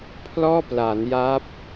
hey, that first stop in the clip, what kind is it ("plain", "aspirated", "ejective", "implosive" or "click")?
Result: aspirated